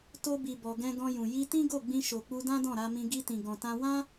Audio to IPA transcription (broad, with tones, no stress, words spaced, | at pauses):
to˧bi˨bɔ˨ ɡɛ̃˧ ɡɔ̃˧jũ˨ ji˧tĩ˦ ɡo˦˨ɡ͡bĩ˧ ʃo˨k͡pu˧dã˦ dɔ̃˦˨ɾa˧mĩ˧ ɡi˧tĩ˨ ɡɔ̃˨tã˧ wã˦